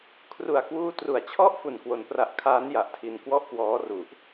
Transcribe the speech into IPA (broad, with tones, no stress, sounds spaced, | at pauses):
kʰ r u˨˩ a̯ k w uː˦˥ t r u˨˩ a̯ t͡ɕʰ ɔ˥˩ ʔ f u˨˩ n k w o˧ n p r a˦˥ ʔ kʰ aː˦˥ n j a˨˩ ʔ tʰ i˧ n k w ɔ˥˩ ʔ k w ɔː˦˥ r u˨˩ ʔ